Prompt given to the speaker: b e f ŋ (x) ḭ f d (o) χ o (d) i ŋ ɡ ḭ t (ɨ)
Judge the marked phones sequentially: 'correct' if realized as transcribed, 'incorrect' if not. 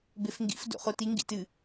incorrect, incorrect, incorrect, correct

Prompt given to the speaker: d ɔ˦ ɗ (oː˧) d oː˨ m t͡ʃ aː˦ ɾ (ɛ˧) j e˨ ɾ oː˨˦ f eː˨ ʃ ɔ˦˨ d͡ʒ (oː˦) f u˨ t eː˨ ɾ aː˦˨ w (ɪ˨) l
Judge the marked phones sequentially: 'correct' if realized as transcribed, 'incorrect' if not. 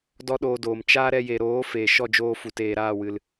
correct, correct, incorrect, incorrect

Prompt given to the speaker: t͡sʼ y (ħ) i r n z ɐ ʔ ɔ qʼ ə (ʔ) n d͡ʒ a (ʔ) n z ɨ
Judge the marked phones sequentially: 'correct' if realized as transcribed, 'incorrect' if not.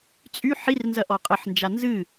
correct, incorrect, incorrect

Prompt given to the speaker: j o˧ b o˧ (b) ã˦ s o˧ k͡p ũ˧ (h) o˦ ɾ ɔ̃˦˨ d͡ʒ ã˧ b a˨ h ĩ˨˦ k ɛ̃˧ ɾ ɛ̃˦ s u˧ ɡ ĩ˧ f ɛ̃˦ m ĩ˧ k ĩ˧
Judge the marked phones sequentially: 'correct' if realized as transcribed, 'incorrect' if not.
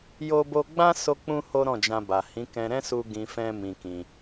incorrect, correct

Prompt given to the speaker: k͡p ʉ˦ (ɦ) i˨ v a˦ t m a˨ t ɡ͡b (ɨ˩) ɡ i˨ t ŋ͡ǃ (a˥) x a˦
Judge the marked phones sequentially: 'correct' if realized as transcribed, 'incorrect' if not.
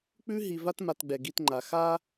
correct, incorrect, incorrect

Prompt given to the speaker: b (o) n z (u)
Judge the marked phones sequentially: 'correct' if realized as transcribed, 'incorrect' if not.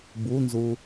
incorrect, correct

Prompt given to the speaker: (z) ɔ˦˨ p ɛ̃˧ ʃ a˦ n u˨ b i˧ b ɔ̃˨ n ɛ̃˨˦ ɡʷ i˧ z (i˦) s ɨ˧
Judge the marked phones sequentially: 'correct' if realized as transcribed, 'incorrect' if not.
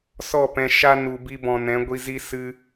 incorrect, correct

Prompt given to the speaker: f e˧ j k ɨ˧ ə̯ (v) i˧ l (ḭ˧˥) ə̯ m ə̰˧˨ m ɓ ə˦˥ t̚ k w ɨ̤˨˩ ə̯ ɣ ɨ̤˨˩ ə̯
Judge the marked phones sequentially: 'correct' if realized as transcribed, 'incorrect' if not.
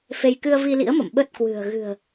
correct, correct

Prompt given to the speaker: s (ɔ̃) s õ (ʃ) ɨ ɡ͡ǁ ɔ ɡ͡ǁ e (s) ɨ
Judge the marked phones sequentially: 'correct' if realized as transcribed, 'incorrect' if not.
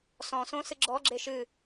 correct, incorrect, incorrect

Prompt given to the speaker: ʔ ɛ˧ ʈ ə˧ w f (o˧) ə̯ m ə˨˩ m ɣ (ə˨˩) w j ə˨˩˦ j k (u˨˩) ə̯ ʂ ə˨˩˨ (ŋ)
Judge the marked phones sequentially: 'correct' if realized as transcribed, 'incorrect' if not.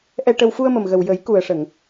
incorrect, correct, correct, correct

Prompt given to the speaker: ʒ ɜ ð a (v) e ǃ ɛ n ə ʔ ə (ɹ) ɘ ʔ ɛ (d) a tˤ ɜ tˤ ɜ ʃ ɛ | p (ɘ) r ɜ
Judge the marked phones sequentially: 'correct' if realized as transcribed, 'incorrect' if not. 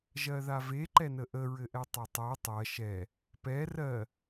correct, correct, incorrect, incorrect

